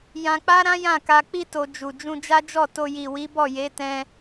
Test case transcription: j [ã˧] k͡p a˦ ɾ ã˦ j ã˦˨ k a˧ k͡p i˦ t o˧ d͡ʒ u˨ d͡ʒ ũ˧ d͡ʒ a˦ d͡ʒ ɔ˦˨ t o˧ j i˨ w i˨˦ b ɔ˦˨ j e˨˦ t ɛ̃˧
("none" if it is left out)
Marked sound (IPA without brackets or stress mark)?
ã˧